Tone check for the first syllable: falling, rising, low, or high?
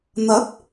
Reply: rising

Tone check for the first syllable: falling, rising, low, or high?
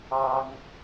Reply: high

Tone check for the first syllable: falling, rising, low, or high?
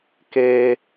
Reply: high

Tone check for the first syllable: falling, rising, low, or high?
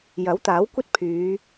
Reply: rising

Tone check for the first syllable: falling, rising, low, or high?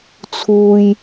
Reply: low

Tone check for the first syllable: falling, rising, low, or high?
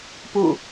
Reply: falling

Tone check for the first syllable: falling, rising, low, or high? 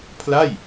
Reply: falling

